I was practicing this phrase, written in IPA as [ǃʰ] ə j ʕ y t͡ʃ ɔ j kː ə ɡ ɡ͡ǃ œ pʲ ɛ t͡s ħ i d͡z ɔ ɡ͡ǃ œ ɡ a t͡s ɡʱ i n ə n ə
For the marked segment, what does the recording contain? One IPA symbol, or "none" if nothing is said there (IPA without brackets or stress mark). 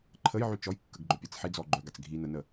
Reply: ǃʰ